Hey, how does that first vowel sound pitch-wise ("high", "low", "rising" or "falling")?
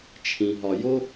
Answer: low